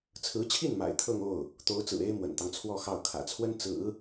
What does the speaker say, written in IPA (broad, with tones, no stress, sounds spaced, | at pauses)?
t͡sʰ ɹ̩˧˥ t͡ɕʰ i˥˩ n m a̰˨˩ ɪ̯ t̪ʰ ɤ˥˧ ŋ o˥˩ ʊ̯ | t̪ o˧˥ ʊ̯ t͡s ɹ̩˨˩ e˥ ɪ̯ m w ə̰˨˩ n t̪ ɑ˦ ŋ t͡sʰ w ɔ˥˧ x ɑ˥˩ ʊ̯ kʰ ä̰˨˩ t͡sʰ w ə˥ n t͡s ɹ̩˨˩˦